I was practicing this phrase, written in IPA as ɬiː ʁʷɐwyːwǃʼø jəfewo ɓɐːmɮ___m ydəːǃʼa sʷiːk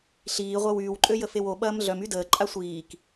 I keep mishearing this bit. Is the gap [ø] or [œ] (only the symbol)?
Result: œ